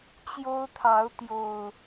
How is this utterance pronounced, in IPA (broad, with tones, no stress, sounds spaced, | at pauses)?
t͡ɕ j o˦ ʊ̯ t̪ʰ ɑ˨˦ ʊ̯ t̪ j o˨˩ ʊ̯